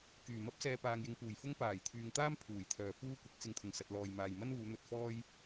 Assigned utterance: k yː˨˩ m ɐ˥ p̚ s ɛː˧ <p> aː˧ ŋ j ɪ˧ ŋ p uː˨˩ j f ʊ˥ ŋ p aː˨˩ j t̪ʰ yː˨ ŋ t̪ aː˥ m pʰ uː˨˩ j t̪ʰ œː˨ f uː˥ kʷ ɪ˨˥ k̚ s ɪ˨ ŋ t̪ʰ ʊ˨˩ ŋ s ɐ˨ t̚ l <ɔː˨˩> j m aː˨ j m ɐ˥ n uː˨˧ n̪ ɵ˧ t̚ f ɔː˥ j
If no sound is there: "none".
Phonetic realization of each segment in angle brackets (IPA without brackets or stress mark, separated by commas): p, ɔː˨